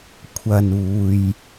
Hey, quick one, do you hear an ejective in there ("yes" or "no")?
no